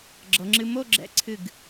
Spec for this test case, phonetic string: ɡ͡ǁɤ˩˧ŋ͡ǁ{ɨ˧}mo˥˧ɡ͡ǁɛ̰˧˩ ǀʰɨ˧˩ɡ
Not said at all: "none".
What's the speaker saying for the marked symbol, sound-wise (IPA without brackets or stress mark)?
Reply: ɨ˧